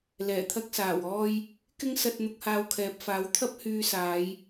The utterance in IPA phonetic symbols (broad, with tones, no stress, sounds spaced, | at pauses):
l ɛː˨˩ t̪ʰ ɐ˧ k̚ s aː˨˩ w ɔː˧ j | k ɪ˥ ŋ s ɐ˧ t̚ n̪ ʊ˧ k̚ h aː˧ w kʰ ɛː˨ p̚ f aː˨˥ w t̪ʰ ɐ˥ p̚ h yː˧ s aː˨˧ j